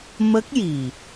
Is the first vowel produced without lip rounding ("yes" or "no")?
yes